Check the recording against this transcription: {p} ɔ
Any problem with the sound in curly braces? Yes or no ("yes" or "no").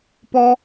no